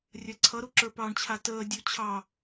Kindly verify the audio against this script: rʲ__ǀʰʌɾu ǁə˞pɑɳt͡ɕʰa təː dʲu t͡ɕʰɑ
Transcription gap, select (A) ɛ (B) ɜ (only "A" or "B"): B